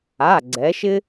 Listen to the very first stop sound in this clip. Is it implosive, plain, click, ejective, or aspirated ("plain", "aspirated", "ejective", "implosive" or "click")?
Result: click